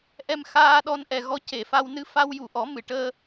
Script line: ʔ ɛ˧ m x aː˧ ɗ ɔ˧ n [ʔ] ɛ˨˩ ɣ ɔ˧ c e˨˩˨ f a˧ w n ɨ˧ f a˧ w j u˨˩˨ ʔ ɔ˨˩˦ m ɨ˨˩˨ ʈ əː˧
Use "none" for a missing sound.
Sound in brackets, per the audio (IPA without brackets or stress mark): ʔ